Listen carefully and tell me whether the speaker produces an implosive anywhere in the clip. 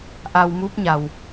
no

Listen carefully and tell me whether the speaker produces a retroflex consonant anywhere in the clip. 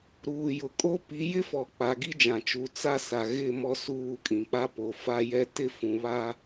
no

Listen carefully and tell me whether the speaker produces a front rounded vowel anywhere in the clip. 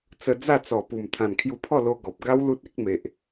no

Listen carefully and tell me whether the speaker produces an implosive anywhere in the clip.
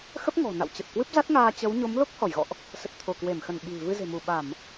yes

